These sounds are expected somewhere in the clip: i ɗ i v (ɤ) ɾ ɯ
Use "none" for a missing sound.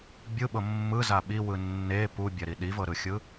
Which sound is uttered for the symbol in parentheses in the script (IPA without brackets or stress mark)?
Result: ɤ